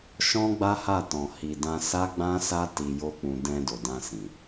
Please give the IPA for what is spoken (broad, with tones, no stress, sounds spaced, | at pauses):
ʃ ɔ̃˦ ɡ͡b a˦ h a˦˨ t ɔ̃˨ h i˨ d ã˧ s a˦ ɡ͡b ã˦ s a˦ t i˧ j o˦ k͡p ũ˧ d ɛ̃˧ d o˨ d ã˧ s ĩ˨